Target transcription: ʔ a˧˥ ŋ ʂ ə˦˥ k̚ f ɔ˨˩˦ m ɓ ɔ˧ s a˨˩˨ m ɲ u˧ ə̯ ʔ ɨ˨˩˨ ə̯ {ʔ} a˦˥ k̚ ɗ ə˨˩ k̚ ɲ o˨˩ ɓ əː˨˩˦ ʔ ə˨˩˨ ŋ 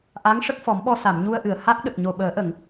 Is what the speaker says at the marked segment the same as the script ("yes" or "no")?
no